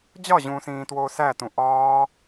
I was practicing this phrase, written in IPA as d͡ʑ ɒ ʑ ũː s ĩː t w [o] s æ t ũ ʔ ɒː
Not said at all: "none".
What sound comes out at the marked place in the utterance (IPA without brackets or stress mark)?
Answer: oː